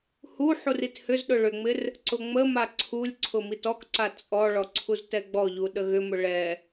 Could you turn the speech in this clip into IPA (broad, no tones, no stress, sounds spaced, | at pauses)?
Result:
h u ħ u r i t h ʏ z ɗ ʊ ɭ ʏ ŋ͡m ɪ r | ǀ ʊ ŋ͡m ə m a ǀʰ u lʲ ǀʰ ʊ m i t ɔ k ǀ a t͡sʼ ɔ ɭ ɔ ǀʰ u z t ɛ ɡ͡b ɔ ʎ u ɗ ə ɣ ʏ m ʊ ɭ ɛ